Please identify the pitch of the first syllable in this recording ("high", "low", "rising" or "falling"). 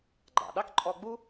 low